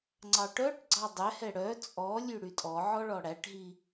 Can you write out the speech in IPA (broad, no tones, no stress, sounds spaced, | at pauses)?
ŋ͡ǀ ɑ ʈ œ ʈ ɡ͡ǀ ɑ dˤ ɛ h ɛ ɽ œ t͡sʼ ɔ lʲ ʉ ɽ y tʼ ɔ ʕ ɔ ɭ ɔ ɽ æ ʈ ɦ i